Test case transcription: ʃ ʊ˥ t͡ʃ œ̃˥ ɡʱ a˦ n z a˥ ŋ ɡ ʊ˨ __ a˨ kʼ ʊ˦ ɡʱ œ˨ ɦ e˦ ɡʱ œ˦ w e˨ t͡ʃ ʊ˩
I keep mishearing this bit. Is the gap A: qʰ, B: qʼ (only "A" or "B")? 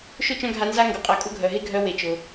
B